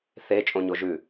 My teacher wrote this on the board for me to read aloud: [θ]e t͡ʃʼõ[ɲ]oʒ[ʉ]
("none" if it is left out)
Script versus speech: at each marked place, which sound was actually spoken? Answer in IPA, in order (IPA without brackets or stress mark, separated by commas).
θ, ɲ, ʉ